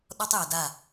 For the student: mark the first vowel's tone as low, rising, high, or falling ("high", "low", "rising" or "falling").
high